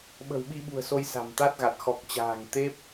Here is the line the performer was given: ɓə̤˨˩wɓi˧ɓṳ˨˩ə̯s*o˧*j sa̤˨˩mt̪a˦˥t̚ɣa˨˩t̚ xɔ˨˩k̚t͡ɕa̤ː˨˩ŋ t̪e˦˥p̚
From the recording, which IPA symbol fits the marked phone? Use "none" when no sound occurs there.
o˧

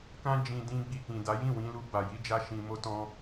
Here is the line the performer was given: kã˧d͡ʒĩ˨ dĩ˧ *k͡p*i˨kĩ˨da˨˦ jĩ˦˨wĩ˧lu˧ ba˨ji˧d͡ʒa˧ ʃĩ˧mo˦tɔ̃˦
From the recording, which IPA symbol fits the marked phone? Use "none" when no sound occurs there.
ɡ͡b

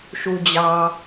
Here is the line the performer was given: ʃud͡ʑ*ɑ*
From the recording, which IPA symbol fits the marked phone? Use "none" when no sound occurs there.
ɑ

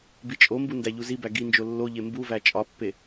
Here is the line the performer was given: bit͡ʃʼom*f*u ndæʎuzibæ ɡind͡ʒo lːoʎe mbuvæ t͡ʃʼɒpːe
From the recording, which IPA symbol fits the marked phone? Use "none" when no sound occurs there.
b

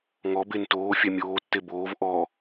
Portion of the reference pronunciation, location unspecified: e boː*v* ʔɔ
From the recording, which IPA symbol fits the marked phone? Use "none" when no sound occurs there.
v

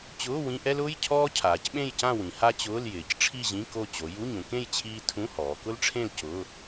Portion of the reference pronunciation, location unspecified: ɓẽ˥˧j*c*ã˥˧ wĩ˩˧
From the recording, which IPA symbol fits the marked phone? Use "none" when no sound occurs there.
c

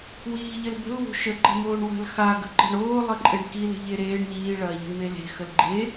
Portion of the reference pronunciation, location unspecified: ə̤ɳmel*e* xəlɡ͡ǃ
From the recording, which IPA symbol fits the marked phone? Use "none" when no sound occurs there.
e̤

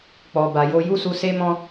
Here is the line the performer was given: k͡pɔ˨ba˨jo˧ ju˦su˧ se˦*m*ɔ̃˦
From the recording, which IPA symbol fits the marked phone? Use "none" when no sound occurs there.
m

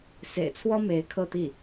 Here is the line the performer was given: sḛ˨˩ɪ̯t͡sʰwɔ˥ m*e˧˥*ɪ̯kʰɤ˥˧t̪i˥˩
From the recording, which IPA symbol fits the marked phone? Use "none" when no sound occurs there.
e˧˥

